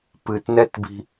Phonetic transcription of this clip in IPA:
p ɨ t n ɛ t b i̤

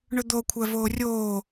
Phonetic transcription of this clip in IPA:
ɳ ɵ d̪ o kʷʰ æ v oː rʲ oː

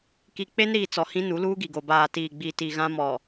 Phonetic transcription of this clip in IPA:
k i˨ k͡p e˦ n ɾ iː˨ t͡s ɔ˨ h ĩ˦ n u˨˦ l uː˦ ɡ i˨ ɡ o˨ b aː˨ t iː˨ ɡ͡b i˨ t i˨ ɣ ã˦ m ɔ˨

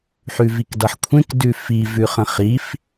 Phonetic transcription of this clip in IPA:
ħ ʉ v i k d ʌ ħ kʷʰ ẽ k d ʉ f i v ʉ χ ə̃ χ i f

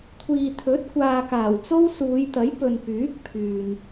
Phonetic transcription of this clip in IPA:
kʷʰ iː˨ t̪ʰ ɵ˨˥ t̚ kʷ aː˨ k aː˨˩ w t͡s o˥ w s uː˨˧ j t̪ ɐ˨˥ j p ɵ˨ n p yː˨˥ k̚ pʰ yː˨ n

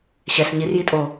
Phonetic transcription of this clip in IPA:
ɕ ɛ s ɲ i r j i tʼ o

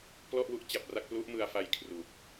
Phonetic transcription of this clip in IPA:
p l ɔ˥˩ ʔ w u˥˩ ʔ t͡ɕ a˨˩ p̚ r a˥˩ k̚ p l u˦˥ ʔ m ɯ˧ a̯ f a˧ j kʰ r uː˨˩ k̚

